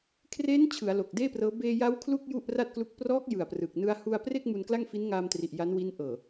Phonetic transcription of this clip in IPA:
kʰreː˦˥n t͡ɕʰɯ˩˦a̯ lo˨˩k̚ deː˥˩prɤː˦˥ beː˧ja˦˥w kʰlu˥˩k̚ ju˥˩ʔra˥˩t̚klu˦˥k̚ prɔː˦˥k̚ jɯ˨˩a̯prɯ˨˩k̚ nɯ˧a̯hu˧a̯pre˥˩k̚ mu˧nkla˥˩ŋ fi˦˥nŋaː˧mtri˨˩ʔ ja˦˥nwi˦˥n ʔɤː˨˩

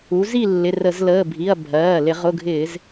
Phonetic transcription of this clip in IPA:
u˩˧zi˦˨ lːɪ˩˧˩rə˧˩˧zləː˩˧˩bʱi˩˧˩ɐ̯ bʱɜː˩˧˩ lɪ˧˩˧ʁʊ˩˧˩ɡʱɪː˧˩˧z

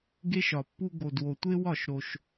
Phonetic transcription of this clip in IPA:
ɡe˦ʃɒ˨pːu˦ ɡo˨dwo˨tʷe˦wɒ˦˨ʃ ɾo˦ʃ

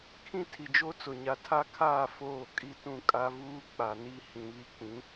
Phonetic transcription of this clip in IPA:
kʰĩ˦tʰi˨d͡ʒo˦ t͡sʊ˨ɲa˨ tʰa˦kʰaː˦˨ foː˦˨ kʼi˦tũ˦˨ kʼa˦vuː˦ k͡pa˨ni˦ hĩ˨βi˦k͡pĩ˨˦

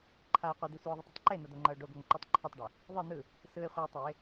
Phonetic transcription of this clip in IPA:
ǃʰaɪ̯ qʷid̪i sʷeʊ̯ðˤɯtˤatˤ ǃenʌd̪oŋ͡ǃʌʊ̯ ɖoɡoŋǃutˤ ǃʰetˤɖo | ðˤɯ n̪ɯ | sɯɪ̯ χʷʌʊ̯tˤaɪ̯

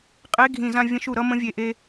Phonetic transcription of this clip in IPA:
qʼe˧˥˧ɡʱĩ˧˩˧zã˧ vʲə̃˧ʃu˧˩˧ɾʌ˧ mə̃˧˥˧vʲe˧˩˧ʔe˧

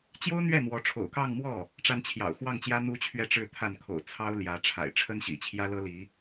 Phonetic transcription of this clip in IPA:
t͡ɕjo˥ʊ̯n̪ɥɛ˥˩n̪wɔ˧˥ ʈ͡ʂʰo̰˨˩ʊ̯kɑ˥˧ŋmwɔ˥˩ | ʈ͡ʂa˥n t͡ɕʰjɑ̰˨˩ʊ̯xwɑ˥˩ŋt͡ɕjä˥ n̪u˥t͡ɕʰɥɛ˥˧ʈ͡ʂɻ̩˥˧ t̪ʰa˥˩nkʰo̰˨˩ʊ̯ t͡sʰɑ˥ʊ̯ ljä˧˥ʈ͡ʂʰa̰˨˩ɪ̯ ʈ͡ʂʰə˥nɕḭ˨˩ t͡ɕʰjä˥lɤ˥li˧˥

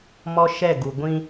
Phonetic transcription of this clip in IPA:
mɔ˦ʃɛ˦˨ɡu˨ ɡʷĩ˦

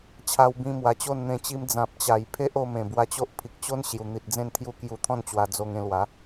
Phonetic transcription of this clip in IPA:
t͡ɕʰa˧wbĩ˧mwa˨˩t͡ɕo˥˧n n̪ẽ˨˩t͡ɕi˧m d͡zã˨p̚t͡ɕa˨˩j pʰe˦ʔo˧ mẽ˨˩bwa˧t͡ɕo˦ʔ pʰi˨k̚t͡ɕo˦n ɕju˨˩n̪i˨t̚d͡zẽ˥˧nt̪ʰju˦ kju˧t̪ʰɔ̃˥˧nt͡ɕwa˧d͡zo˧ŋ ẽ˧lwa˨˦

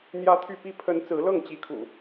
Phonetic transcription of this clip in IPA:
n̪jä˦t̪ʰy˥˨ pi˦ pʰə˨˦n t͡sɹ̩˨˦lɤ˥˨ŋt͡ɕi˨˦kʰṵ˨˩

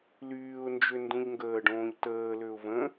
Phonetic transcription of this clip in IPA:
lyːʊ̯nd͡ʒø ndũʎŋɡəːɖõːʎ təːløʊ̯ və̃

